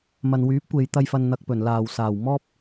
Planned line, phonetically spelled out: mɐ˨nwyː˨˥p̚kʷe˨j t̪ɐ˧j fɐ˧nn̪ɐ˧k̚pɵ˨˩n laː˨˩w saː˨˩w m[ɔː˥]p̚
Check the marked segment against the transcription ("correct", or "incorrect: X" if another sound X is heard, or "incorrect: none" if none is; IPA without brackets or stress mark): correct